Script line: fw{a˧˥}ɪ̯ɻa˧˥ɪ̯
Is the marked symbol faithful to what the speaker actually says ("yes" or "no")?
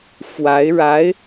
yes